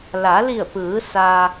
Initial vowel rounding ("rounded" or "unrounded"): unrounded